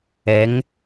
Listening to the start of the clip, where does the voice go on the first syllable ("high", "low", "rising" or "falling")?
rising